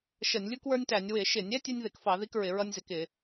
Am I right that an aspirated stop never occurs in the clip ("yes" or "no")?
yes